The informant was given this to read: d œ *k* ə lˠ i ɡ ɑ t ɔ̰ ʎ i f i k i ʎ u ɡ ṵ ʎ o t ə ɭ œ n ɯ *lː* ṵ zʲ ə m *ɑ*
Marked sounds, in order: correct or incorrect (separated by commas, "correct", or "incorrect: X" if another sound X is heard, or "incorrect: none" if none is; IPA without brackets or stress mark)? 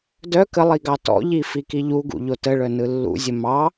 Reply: correct, correct, correct